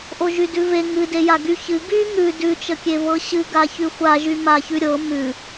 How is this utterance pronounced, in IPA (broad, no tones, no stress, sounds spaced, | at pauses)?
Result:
ʔ o ʒ y d ʉ v e ŋ ɨ d e j a ɡ y ç ɨ ɡ y ŋ ʉ d ʉ t͡ʃ ə kʲ e v ɤ ɕ ɨ ɡ a ç ʉ xʷ a ʒ y m a ç ʉ ɾʲ ɤ m ʉ